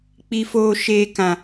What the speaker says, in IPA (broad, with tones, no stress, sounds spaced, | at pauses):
k͡p i˧ f oː˧ ʃ eː˧ k ã˨